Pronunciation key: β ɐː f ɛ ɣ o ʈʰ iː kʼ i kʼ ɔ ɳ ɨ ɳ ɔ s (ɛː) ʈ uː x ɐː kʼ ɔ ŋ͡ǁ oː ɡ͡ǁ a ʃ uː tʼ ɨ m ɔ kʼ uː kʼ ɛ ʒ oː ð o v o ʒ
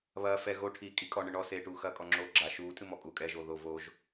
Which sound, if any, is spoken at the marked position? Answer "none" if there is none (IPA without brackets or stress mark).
eː